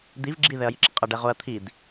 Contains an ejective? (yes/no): yes